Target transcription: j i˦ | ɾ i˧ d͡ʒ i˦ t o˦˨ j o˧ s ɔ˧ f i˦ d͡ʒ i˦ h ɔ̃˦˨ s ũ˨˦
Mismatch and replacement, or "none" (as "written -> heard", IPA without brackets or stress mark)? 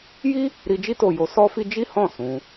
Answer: ɔ˧ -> ɔ˦